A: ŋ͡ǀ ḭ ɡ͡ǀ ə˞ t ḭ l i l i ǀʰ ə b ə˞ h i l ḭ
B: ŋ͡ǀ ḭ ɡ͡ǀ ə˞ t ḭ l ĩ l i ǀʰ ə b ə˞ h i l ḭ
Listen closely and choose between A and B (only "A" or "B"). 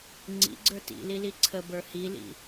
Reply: A